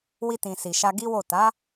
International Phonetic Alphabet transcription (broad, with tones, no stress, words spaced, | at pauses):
wi˧tĩ˨ si˨ʃa˧ɡi˦wo˦˨ ta˨˦